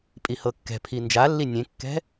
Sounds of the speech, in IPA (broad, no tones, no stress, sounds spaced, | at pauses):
pʼ i h ɤ kː ɛ̤ pʰ i n d͡ʒ a lː i nʲ ẽ kː ɛ̤